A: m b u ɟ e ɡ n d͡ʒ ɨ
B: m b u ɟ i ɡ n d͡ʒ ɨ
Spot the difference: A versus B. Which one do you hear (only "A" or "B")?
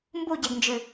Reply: A